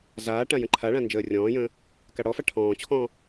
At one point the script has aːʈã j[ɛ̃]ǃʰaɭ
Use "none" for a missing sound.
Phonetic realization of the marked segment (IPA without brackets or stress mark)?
ə̃